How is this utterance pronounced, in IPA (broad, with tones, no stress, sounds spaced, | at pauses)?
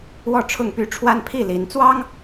w ɔ˥˨ ʈ͡ʂʰ ʊ˥˨ ŋ p y˥˨ ʈ͡ʂʰ w a˦ n pʰ i˥˨ l i˨˦ n t͡s w ɑ˦ ŋ